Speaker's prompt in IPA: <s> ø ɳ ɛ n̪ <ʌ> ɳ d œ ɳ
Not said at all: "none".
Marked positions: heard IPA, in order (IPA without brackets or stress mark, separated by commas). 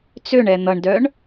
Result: t͡s, ʌ